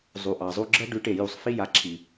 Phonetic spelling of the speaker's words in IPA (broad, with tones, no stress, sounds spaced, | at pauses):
zˤ u˨ ʔ ɑ˨ zˤ u˧ ɡ͡ǁ ɜ˦ ɖ ʉ˨˦ ʈ e˨ j u˨ sˤ f i˧ j a˨ ǁʰ i˨